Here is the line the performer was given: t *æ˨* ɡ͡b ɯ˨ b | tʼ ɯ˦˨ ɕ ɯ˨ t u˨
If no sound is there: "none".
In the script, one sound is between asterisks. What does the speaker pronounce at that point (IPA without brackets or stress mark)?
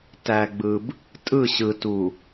æ˨